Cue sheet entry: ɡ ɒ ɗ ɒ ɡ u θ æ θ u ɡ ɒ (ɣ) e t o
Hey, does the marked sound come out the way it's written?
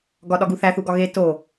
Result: yes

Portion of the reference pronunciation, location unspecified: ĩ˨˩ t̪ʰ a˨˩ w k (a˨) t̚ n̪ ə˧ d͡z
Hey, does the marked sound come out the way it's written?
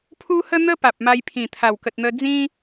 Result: no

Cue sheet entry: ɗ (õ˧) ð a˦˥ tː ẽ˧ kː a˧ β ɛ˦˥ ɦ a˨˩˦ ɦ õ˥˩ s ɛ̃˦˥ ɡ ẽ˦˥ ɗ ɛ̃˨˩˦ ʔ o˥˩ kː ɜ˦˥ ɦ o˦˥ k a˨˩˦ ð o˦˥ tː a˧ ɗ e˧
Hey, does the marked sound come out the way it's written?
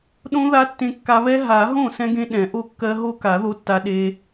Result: no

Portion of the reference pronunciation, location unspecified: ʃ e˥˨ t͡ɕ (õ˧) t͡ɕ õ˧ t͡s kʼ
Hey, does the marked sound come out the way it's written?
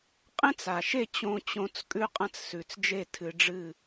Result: yes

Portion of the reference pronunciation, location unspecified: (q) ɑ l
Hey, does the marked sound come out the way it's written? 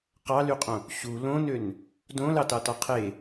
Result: yes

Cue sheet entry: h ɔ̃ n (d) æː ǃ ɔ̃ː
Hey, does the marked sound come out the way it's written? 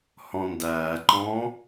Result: yes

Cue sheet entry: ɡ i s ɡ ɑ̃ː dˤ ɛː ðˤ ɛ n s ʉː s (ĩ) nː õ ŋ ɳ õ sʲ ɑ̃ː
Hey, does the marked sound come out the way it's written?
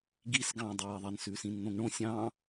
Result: yes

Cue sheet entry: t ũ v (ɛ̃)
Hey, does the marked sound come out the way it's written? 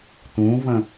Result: no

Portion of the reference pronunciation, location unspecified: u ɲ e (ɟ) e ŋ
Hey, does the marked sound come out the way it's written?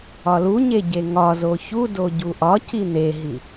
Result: yes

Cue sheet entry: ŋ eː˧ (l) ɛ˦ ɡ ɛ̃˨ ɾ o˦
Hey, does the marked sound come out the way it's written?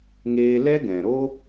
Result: yes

